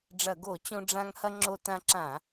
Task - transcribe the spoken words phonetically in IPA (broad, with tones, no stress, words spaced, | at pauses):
ɖ͡ʐɐ˧˩˧ɡo˧˩˧ t͡ɕõ˧ ɖ͡ʐã˧ŋ hɐ˧ ŋ͡ǁo˧tã˧ǁã˧˩˧